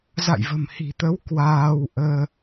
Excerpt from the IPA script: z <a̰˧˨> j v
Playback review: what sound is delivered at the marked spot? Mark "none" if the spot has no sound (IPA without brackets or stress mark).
a̰˧˨